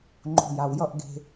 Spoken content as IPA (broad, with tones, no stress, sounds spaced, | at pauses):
ŋ͡ǃ o̤˧˩ j a˨˩˦ w j ʌ˥˨ ʔ ɡ e̤˧